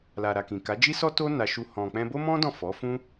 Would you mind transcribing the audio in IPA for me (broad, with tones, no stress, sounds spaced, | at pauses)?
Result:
l a˨ ɾ a˨ k ĩ˨ k a˨˦ d͡ʒ i˦ s ɔ˦ t o˦ n a˧ ʃ u˧ h ɔ̃˨ k͡p ɛ̃˧ b o˦ m ɔ̃˦ d ɔ̃˦˨ f ɔ˨˦ f ũ˦